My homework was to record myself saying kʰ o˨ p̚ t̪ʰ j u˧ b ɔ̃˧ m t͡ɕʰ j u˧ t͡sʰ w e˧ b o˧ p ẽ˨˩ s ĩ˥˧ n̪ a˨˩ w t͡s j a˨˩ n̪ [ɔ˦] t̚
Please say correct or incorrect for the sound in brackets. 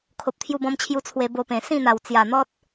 correct